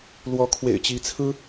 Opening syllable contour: rising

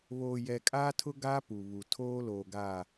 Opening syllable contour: low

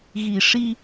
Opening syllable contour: low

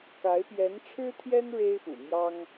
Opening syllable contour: rising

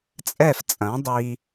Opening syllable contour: falling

